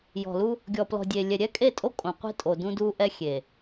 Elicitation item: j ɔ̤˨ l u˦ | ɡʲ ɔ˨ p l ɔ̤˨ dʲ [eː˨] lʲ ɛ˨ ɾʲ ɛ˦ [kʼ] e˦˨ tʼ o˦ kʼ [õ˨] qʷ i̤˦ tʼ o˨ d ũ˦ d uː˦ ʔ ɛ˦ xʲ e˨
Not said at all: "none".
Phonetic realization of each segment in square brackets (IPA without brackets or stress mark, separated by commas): eː˨, kʼ, õ˨